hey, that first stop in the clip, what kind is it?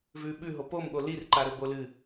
implosive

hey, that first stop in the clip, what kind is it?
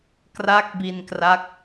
plain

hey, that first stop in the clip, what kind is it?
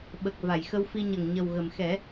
implosive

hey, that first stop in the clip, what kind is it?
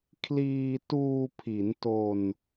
aspirated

